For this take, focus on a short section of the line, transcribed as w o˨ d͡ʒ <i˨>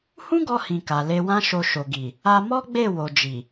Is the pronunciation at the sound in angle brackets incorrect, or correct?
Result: correct